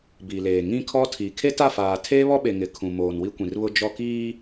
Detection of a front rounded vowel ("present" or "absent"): absent